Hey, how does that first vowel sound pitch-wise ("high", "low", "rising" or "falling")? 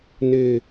low